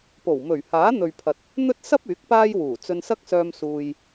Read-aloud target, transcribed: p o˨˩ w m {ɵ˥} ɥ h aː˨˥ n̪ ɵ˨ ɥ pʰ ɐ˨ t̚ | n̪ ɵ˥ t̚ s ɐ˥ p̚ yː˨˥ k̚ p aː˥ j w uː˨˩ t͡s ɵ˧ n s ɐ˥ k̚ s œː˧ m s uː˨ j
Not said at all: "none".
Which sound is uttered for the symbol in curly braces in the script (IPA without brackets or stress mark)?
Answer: ɵ˨˩